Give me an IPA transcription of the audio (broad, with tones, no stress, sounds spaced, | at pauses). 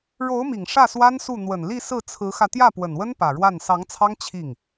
ɻ o˧˥ ʊ̯ m i˨˩ ŋ ʂ ä˥˩ s w a˥ n s u˥˩ n̪ w ə˨˩ n l i˥˧ s ɹ̩˥˩ t͡sʰ ɹ̩˧˥ x ä˧ t̪ j ä˥˩ p w ə˨˩ n w ə˥ n p ä˨˩ ɻ w a˥˩ n s ɑ˧˥ ŋ t͡sʰ ɑ˥ ŋ t͡ɕʰ i˥˩ ŋ